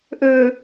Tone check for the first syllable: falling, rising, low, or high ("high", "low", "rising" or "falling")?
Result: low